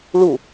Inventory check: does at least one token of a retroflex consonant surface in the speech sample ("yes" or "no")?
yes